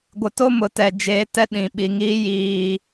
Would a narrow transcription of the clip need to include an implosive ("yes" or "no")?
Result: yes